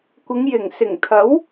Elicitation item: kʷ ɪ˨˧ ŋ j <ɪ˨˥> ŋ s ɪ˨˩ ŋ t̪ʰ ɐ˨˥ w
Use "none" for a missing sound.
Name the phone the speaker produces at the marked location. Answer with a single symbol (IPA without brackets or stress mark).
ɪ˨˩